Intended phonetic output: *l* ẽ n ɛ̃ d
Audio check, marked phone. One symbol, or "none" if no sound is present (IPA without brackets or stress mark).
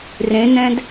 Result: r